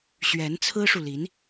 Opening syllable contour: rising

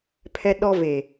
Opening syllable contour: high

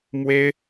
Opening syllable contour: high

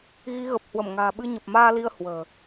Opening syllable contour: rising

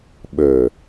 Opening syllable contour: low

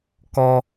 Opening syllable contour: high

